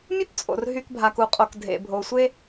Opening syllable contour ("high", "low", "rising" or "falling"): high